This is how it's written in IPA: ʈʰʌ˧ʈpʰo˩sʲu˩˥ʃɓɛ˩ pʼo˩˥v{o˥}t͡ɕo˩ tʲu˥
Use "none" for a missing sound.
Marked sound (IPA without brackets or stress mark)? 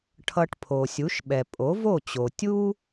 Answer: o˥˩